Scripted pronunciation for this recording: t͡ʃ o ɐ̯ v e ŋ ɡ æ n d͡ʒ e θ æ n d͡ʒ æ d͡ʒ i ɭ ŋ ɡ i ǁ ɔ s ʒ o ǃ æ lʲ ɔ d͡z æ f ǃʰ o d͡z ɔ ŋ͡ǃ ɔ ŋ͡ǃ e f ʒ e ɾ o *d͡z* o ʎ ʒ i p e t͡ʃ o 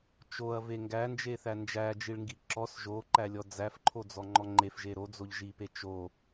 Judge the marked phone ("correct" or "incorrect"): correct